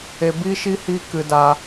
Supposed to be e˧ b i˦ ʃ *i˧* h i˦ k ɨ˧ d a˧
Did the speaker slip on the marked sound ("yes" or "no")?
yes